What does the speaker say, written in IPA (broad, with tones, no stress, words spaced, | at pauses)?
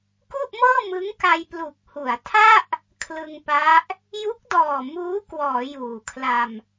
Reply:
ku˥˩ʔmɤː˥˩mɯ˦˥ŋka˧j plu˨˩k̚hu˩˦a̯tʰa˥˩ʔ | kʰlɯ˧ŋpa˦˥ʔ | ju˦˥k̚dɔː˨˩ muː˦˥kwɔː˩˦ juː˨˩kʰla˧m